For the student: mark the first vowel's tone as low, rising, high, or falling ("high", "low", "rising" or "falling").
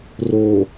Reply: low